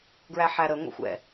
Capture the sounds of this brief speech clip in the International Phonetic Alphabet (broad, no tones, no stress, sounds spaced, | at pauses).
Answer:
ɡ ɹ æ ħ æ ɾ ə ŋʷ ə̰ xʷ ɛ̰